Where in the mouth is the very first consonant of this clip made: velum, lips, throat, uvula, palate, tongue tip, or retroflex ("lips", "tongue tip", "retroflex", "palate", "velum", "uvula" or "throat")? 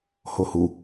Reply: throat